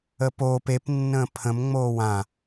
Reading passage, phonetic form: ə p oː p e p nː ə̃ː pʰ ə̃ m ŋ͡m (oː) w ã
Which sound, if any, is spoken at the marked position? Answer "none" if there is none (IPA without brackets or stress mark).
oː